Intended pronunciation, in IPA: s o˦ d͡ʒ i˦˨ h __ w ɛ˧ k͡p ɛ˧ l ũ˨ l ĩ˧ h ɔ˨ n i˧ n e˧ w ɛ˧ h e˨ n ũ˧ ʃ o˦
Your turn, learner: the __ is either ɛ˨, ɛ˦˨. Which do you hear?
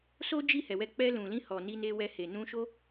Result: ɛ˨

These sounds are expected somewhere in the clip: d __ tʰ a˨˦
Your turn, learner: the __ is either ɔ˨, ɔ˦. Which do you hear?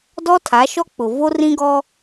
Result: ɔ˦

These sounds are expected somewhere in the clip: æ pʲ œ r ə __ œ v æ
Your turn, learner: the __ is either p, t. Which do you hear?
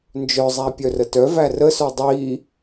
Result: t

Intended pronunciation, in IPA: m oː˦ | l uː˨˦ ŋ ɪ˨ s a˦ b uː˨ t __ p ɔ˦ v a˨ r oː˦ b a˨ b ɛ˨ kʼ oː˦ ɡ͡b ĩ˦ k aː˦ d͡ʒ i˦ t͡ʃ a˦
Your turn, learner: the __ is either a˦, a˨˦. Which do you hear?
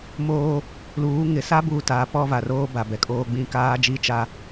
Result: a˨˦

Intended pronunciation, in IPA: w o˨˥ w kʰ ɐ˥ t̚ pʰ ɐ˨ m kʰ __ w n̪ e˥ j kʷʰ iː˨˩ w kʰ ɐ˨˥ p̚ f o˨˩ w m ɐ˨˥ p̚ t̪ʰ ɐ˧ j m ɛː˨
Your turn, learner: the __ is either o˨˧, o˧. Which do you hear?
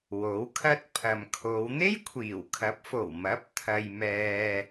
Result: o˨˧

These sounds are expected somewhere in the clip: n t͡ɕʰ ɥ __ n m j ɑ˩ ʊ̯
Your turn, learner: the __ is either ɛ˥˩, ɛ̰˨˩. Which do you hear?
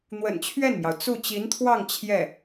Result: ɛ˥˩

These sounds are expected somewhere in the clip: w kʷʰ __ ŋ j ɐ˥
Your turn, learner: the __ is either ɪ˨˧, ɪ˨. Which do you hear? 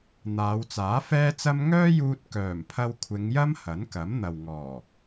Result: ɪ˨˧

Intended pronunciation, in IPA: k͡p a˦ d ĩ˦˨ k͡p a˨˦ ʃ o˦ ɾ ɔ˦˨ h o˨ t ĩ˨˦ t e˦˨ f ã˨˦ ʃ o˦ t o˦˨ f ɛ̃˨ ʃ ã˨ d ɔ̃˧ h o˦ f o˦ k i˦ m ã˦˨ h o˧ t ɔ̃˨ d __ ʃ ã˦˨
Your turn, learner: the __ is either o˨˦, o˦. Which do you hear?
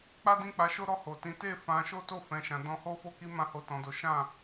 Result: o˨˦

